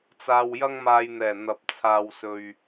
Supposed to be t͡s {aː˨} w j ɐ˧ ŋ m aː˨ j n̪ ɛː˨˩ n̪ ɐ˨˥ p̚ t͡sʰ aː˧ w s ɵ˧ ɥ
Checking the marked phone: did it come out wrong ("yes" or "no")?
no